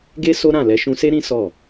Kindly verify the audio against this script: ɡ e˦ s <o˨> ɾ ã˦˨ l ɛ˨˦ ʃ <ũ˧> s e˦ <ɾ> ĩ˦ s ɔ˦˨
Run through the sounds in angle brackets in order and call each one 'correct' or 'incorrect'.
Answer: incorrect: o˦, correct, correct

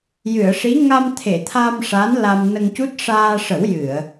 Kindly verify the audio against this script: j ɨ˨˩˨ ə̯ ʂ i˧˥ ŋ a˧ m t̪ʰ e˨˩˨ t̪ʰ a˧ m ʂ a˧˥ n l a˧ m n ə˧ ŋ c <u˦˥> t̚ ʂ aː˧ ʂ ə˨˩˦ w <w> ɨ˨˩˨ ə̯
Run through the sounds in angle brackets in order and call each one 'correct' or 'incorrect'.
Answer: correct, incorrect: j

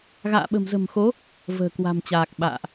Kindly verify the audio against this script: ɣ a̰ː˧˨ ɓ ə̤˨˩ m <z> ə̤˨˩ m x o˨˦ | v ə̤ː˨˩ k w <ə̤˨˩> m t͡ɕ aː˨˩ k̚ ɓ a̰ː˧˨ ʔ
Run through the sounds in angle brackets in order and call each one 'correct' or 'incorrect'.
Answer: correct, incorrect: a̤˨˩

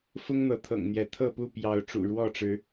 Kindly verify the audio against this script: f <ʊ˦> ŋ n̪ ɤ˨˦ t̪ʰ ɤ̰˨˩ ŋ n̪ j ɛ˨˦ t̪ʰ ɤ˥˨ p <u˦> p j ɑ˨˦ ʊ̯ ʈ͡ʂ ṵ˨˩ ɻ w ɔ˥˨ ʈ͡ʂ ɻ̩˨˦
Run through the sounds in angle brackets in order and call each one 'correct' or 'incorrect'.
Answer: correct, incorrect: u˥˨

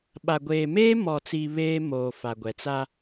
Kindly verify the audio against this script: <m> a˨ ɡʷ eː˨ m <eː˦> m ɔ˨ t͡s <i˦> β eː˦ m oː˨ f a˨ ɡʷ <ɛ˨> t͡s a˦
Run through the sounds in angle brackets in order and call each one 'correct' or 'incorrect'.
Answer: incorrect: ɓ, correct, incorrect: i˨, correct

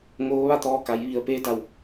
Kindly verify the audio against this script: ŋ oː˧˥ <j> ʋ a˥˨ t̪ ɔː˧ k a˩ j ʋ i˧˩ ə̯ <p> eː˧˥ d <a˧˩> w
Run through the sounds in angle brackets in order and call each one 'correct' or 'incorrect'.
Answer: incorrect: none, correct, correct

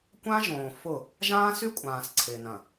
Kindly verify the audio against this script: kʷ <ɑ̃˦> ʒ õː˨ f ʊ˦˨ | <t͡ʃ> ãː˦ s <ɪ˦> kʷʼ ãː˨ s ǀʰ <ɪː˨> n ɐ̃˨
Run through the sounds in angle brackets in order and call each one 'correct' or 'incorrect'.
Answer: incorrect: ã˦, incorrect: ʒ, incorrect: y˦, correct

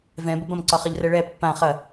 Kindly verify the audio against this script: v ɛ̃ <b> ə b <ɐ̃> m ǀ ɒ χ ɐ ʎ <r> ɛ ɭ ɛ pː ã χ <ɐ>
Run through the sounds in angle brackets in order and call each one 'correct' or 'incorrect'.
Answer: correct, correct, correct, correct

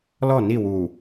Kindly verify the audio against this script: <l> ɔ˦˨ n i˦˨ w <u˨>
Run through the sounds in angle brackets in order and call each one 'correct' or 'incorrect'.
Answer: correct, correct

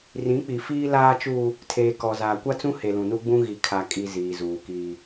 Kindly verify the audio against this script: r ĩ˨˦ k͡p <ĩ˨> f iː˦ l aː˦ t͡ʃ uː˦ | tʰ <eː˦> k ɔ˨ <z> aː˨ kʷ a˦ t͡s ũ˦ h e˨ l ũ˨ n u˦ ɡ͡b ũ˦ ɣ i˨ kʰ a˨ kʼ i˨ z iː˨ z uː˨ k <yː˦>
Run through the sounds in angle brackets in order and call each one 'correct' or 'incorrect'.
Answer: incorrect: i˨, incorrect: eː˨, correct, incorrect: iː˦

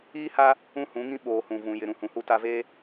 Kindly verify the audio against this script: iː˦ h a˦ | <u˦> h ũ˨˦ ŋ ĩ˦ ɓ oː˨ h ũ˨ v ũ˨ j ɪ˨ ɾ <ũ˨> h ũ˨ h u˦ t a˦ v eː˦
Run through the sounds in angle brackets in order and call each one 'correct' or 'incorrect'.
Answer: incorrect: ũ˦, correct

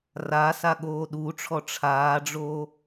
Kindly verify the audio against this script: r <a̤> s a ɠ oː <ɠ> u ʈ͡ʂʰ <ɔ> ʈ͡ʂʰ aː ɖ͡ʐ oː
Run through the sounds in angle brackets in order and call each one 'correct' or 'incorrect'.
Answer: incorrect: a, incorrect: ɗ, correct

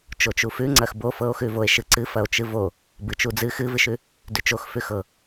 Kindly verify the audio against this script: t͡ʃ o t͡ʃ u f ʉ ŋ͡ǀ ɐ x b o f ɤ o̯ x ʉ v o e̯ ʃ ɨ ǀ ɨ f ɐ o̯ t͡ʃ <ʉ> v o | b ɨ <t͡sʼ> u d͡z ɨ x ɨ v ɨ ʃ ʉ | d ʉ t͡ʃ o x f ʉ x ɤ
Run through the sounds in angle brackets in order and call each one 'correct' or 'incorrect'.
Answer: incorrect: ɨ, incorrect: t͡ʃ

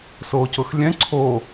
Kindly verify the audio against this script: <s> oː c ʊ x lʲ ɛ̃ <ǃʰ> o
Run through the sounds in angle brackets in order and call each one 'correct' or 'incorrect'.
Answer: correct, incorrect: ǀʰ

